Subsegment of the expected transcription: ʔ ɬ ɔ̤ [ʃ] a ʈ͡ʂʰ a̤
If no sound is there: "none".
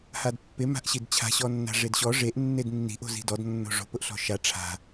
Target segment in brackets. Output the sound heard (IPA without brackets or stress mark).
ʃ